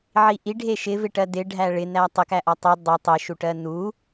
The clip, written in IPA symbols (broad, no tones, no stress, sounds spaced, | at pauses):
ʕ i ʔ i ɖʱ e ʃ ɪ v ɪ ʈ ɜ d ɪ ɖʱ æ ɭ ɪ n æ tˤ ɪ k æ ʔ ɔ tˤ u dˤ o tˤ ɪ ʃ u ʈ ɜ n u